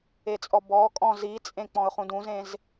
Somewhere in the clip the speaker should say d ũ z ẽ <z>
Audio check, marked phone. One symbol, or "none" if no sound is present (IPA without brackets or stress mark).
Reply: z